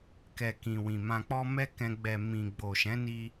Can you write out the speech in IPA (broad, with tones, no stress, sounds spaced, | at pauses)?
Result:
k ɛ˨ k ĩ˨ w ĩ˨ m ã˨ k͡p ɔ˧ m ɛ˦ k ɛ̃˧ ɡ͡b ɛ˨ m ĩ˨ ɡ͡b o˨ ʃ ɛ̃˨˦ n i˧